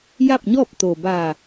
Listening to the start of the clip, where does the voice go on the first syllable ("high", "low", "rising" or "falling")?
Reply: falling